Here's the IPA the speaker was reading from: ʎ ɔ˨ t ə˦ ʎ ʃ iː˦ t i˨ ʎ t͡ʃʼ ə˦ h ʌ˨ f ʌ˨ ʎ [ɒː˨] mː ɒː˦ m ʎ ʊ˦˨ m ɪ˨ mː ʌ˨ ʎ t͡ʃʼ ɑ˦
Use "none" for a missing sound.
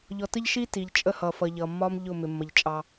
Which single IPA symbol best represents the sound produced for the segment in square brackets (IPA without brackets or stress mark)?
ʌː˨